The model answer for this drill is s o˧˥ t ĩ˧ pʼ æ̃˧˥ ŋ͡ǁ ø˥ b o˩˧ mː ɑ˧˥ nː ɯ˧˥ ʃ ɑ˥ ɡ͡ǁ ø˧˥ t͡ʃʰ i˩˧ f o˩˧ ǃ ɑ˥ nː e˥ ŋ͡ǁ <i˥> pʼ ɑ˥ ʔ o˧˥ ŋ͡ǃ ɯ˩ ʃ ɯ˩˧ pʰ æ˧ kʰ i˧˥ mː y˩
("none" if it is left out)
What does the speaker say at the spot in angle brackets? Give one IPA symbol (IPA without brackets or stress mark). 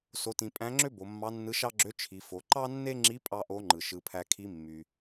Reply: i˧˥